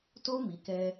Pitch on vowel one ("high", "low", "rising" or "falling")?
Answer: high